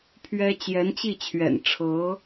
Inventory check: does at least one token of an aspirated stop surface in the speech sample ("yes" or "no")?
yes